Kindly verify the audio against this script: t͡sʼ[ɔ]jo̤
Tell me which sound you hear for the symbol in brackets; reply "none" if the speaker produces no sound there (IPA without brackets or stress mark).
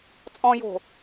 ɔ̃